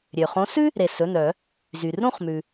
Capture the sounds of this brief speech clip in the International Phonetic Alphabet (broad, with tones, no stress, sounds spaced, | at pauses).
ɾʲ ø˩ χ õ˨˥ s ʉ˥ | ɾ e˩ s ɵ˩˧˩ n œ˧˩˧ | z y˩ r ɾ ũ˥˨ χ m ʉ˩